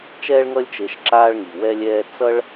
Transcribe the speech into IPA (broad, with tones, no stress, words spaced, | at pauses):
t͡ʃɛː˥ɭŋʌ˥lʲ t͡ʃe˧ʃǁaː˥ɭŋi˩ wɛ˥lʲɛː˥ t͡sʌ˥ɭ